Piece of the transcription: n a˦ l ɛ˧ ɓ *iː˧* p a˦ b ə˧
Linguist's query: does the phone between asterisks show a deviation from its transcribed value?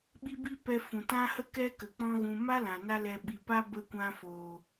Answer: yes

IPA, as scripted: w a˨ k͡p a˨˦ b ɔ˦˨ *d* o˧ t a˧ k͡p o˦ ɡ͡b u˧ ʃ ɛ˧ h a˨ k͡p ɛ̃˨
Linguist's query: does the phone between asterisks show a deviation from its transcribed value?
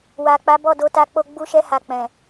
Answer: no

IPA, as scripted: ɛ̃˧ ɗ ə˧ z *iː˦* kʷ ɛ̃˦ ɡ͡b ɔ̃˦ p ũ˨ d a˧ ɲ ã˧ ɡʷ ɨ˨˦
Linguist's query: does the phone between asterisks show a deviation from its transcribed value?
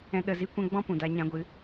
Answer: yes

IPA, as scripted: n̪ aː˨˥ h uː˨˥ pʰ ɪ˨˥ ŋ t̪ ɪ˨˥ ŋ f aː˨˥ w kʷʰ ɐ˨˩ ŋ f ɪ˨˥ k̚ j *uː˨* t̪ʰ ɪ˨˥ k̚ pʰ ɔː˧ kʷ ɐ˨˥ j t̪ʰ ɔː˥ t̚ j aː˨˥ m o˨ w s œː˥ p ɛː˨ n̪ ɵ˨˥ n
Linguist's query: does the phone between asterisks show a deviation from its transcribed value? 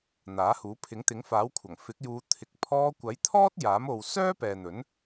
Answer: yes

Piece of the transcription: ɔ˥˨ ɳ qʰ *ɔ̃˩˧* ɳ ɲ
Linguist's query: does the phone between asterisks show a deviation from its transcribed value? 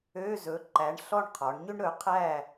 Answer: yes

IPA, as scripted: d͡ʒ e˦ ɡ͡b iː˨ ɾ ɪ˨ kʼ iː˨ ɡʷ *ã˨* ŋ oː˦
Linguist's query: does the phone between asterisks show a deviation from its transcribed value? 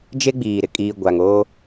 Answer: yes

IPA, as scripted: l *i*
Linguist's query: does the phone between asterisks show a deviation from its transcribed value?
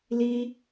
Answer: no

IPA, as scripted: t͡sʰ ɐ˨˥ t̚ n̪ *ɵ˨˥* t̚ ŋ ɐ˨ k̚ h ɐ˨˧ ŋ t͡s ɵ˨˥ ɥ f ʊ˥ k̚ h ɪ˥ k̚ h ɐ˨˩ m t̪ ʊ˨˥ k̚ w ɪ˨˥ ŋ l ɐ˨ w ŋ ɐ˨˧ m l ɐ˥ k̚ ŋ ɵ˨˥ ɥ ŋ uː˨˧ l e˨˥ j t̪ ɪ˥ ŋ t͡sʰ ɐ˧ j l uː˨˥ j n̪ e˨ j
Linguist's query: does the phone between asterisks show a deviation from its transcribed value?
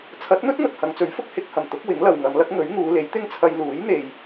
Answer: yes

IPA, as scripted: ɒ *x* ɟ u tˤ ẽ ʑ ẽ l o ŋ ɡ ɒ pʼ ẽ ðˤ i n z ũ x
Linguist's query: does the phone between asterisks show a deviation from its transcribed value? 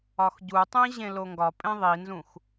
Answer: no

